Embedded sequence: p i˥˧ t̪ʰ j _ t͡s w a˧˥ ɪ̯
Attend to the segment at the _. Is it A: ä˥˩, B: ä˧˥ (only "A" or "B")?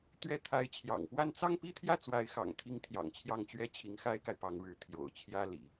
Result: A